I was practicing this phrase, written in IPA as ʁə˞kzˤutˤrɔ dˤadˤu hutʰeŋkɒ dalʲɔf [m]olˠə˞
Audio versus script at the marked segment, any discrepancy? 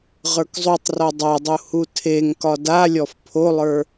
yes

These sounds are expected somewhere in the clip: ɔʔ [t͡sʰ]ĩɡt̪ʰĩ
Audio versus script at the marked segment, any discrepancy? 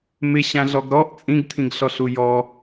yes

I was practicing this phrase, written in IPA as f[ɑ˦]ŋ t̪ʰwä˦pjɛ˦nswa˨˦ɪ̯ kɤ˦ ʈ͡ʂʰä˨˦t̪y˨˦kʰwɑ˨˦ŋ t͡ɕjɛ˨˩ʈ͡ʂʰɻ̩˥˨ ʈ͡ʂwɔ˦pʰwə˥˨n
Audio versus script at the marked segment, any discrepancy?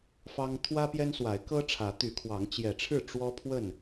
no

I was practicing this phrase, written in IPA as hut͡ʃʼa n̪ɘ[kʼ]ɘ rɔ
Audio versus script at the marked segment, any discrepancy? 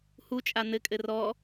no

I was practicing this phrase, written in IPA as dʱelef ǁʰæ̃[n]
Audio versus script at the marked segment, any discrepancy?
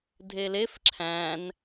no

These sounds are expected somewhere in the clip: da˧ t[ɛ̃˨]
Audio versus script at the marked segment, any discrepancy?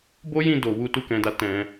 yes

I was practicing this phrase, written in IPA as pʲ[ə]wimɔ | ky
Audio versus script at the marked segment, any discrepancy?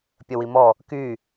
no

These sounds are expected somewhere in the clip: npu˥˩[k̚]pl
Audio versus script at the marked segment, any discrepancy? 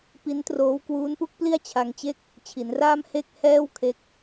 no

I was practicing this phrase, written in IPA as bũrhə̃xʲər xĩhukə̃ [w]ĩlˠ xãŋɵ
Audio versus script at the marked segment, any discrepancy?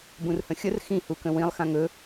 no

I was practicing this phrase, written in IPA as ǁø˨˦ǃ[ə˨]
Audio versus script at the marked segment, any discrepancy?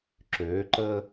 yes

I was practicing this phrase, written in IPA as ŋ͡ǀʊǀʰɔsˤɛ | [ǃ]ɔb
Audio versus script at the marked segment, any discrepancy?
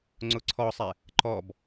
no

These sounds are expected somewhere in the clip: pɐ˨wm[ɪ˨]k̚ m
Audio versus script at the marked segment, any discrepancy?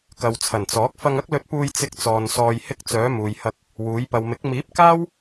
yes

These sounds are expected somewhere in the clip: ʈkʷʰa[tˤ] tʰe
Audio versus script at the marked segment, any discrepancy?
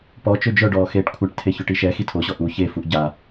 yes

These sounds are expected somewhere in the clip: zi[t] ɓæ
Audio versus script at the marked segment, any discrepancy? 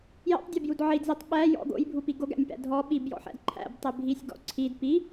yes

